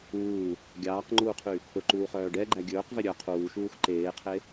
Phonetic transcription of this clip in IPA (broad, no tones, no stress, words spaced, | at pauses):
uː | ɡʲɑːqŋ͡ǃuːqʰy | pɵǃuːχœː ɖɛɡ͡ǃæ ɡʲɵːqvɛ ɾʲœ qʰuːʃuːx ǃeːqʰe